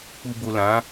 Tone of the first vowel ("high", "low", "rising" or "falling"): low